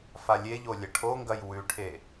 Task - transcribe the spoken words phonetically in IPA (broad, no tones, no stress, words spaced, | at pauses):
falʲeʎo lʲɐʈʰoŋɡɐj wʉʈʰe